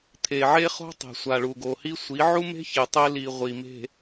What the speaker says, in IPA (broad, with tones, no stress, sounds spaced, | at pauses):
t̪ʰ e˨ ʕ e˦ χ o̤˦ tˤ e̤˨ sʷ a˨ ɭ u˨ ɡ o˨ h i˦ sʷ i˨˦ ʕ u˦ m e̤˦ ç e˨ tˤ e˦ l i˨ ʁʷ i˨ m e̤˨